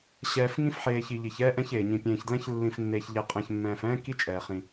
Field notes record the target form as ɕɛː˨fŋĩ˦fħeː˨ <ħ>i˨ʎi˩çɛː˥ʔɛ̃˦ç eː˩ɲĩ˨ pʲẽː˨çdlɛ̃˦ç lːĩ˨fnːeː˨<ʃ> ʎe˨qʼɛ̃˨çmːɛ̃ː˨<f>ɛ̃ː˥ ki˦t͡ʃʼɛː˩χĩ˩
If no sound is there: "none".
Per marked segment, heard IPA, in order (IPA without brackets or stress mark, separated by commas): ç, ç, f